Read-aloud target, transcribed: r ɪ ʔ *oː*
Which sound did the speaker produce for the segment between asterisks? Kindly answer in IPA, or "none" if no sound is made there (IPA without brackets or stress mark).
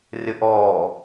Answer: ɔː